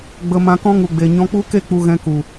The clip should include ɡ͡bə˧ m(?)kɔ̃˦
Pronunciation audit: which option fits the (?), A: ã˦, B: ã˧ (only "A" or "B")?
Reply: B